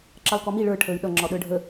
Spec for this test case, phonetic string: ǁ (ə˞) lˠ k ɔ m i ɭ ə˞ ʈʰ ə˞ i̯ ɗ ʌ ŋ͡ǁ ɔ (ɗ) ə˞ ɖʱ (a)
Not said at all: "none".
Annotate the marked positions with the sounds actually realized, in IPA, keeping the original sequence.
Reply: ʌ, ɗ, ə

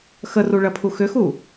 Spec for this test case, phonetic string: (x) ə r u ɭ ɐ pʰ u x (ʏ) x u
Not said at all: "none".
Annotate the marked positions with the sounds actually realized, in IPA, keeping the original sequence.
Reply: x, ʏ

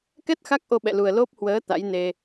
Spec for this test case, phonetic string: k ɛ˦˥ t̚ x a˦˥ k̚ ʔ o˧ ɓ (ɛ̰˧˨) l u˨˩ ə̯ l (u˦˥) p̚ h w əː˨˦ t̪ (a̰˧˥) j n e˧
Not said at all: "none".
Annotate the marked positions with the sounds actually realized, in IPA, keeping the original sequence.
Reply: ɛ̰˧˨, o˦˥, a̰˧˥

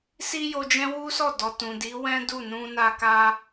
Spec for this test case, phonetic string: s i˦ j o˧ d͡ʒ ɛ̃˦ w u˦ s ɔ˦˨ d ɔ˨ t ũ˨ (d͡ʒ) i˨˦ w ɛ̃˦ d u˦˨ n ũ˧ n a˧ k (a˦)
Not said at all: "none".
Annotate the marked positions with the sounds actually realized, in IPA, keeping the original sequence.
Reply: d, a˦

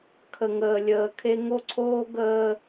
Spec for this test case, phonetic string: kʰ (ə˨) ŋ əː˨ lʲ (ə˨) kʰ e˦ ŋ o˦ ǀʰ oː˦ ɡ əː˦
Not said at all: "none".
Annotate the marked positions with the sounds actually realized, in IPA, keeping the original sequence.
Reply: ə˨, əː˨

